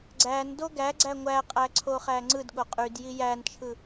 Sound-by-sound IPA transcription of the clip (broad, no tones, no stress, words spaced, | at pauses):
ɡ͡ǀændo ɡæɡ͡ǀæ ŋʷæqʼæǀʰoχæ ŋ͡ǀɯdɠo qʼydji jænt͡ʃʰɯ